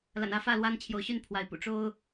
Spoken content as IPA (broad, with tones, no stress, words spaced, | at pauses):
la̰˨˩nä˦fä˥˨lwa˦n t͡ɕʰjo˨˦ʊ̯ɕy˥˨npʰwa˨˦ɪ̯pṵ˨˩ ʈ͡ʂo˦ʊ̯